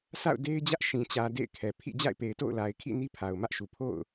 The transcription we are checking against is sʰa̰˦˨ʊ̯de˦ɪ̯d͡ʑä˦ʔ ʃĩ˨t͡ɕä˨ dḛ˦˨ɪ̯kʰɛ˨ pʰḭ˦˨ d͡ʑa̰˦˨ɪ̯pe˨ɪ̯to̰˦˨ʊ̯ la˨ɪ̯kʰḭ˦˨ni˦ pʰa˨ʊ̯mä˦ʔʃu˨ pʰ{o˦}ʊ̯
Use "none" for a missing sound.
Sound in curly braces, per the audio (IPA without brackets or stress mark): o̰˦˨